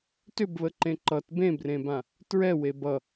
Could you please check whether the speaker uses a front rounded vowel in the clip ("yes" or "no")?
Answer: yes